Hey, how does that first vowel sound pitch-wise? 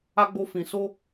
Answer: high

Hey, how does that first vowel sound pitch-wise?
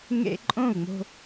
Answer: high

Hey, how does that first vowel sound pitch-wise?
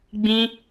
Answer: high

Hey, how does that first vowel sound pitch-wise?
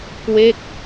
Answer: falling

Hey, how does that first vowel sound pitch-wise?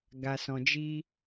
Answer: low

